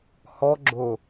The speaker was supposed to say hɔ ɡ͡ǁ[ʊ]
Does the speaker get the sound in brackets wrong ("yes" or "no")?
no